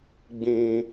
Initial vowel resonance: nasal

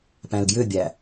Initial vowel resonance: nasal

